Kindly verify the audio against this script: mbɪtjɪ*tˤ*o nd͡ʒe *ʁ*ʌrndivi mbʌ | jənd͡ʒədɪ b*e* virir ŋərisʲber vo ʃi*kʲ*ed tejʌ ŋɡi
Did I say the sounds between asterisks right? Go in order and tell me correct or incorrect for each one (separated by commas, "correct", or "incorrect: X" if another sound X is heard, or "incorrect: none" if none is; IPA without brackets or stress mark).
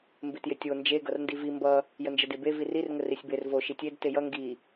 incorrect: tʲ, incorrect: ɡ, correct, incorrect: tʲ